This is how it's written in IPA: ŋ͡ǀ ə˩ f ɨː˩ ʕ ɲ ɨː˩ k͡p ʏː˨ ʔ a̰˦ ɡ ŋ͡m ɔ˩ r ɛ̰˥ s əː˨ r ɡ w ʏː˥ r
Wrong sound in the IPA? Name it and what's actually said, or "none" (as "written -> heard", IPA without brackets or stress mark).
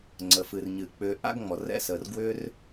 ʕ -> r